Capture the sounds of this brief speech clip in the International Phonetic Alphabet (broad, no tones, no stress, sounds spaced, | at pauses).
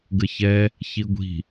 ɡ ə ç ɛ | ç i ɡʷ i̤